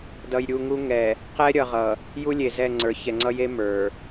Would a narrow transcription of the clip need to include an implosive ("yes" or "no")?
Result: no